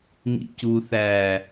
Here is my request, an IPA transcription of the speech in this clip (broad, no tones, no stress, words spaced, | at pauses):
ŋḭcu θæ